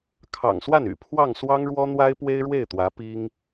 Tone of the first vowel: low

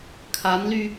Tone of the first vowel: rising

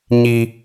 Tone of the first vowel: high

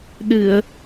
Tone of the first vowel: low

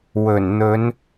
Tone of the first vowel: low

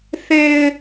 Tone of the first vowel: low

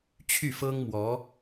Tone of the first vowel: falling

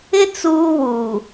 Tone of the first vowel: high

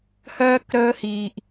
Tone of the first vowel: high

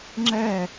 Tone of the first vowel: falling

